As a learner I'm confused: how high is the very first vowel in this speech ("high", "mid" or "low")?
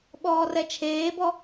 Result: mid